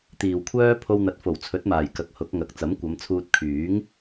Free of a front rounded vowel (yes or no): no